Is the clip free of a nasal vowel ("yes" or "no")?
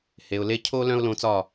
no